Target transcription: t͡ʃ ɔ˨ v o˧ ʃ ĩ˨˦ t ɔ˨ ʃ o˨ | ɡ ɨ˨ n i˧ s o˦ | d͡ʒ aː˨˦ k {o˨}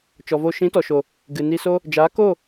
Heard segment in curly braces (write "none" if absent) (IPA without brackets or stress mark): o˦˨